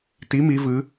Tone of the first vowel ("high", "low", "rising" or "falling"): rising